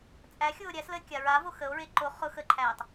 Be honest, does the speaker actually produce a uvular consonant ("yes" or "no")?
yes